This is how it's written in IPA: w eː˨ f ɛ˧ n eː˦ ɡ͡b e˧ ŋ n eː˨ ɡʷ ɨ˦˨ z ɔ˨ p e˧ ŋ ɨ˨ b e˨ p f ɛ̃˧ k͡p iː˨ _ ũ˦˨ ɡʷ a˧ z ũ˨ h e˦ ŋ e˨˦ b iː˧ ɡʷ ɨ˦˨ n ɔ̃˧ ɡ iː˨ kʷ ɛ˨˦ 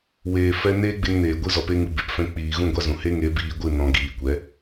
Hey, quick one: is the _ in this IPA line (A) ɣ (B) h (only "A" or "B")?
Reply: A